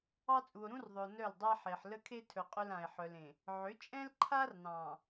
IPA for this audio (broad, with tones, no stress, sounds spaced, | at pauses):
ɑ˦ t͡sʼ u˨ o̯ ɾ ũ˦ r ðˤ ɵ˨ o̯ n œ˦˨ l dˤ a˦ ħ e˨ ħ l ə˦ kʰ e˦ tʰ ɵ˨ qʼ ɵ˦ l ã˨ e̯ ħ œ˨ l ẽ˨ | ʕ ʏ˨˦ t͡ʃʼ ɛ̃˦ l ǃʰ a˦ r n ɑ̃˨